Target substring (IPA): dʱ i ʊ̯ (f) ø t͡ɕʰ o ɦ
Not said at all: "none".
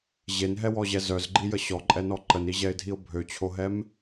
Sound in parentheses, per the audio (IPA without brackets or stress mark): bʱ